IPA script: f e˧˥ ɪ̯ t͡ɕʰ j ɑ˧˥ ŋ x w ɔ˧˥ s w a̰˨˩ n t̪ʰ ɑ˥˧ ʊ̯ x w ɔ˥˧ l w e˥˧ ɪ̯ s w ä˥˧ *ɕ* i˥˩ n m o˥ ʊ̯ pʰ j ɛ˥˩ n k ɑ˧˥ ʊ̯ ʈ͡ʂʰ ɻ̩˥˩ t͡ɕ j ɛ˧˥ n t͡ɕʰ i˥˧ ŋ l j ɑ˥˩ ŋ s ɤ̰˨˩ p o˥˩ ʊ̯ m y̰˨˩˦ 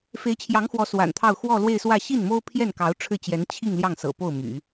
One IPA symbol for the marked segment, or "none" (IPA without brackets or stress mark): ɕ